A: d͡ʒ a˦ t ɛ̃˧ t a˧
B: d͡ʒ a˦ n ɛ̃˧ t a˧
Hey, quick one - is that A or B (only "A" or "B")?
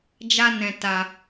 B